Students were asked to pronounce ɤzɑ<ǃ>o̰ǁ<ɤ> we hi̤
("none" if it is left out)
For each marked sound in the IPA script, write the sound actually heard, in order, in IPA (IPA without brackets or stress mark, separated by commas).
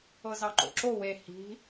ǃ, o